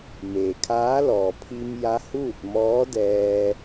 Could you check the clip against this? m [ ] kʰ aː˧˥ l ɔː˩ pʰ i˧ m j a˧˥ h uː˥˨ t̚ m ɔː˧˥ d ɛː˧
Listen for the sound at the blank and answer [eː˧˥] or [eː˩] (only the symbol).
eː˩